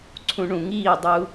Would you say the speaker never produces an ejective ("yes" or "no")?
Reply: yes